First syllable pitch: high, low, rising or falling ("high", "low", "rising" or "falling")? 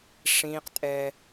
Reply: high